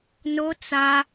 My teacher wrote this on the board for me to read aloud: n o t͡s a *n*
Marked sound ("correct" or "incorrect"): incorrect